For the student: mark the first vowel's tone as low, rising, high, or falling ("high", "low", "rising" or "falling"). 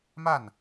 falling